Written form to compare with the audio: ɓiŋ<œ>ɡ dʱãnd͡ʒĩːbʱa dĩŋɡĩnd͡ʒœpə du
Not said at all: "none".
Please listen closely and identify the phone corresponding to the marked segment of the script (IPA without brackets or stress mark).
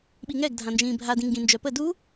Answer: ɛ